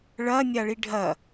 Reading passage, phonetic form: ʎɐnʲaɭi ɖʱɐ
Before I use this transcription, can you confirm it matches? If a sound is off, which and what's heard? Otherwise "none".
ʎ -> ɭ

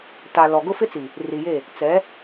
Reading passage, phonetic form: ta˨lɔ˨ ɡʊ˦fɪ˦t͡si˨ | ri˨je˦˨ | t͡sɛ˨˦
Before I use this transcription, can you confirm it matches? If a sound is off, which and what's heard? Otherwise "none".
none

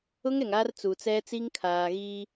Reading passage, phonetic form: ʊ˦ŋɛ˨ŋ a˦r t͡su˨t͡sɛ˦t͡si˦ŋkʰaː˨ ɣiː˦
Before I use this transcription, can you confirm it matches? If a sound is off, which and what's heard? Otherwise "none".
none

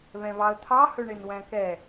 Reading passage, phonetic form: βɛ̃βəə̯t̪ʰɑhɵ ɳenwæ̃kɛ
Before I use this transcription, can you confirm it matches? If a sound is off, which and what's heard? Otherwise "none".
ə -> ɑ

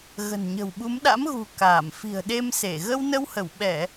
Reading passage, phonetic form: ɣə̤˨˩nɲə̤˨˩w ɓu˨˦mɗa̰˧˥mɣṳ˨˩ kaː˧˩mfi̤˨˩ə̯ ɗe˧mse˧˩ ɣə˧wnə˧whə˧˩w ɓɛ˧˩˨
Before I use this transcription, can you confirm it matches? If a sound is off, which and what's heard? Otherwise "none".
none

